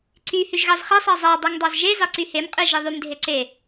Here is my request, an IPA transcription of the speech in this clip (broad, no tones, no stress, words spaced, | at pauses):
ǀy hyʒɣɑzχe sˤɑzˤæ dˤeŋdˤɑzʒe zɑǀyhem qʼiʒiðˤym dʱeǀe